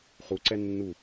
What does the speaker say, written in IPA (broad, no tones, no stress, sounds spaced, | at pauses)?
χ u ǀ ɛ nː u